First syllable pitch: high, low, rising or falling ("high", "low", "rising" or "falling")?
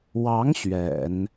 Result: rising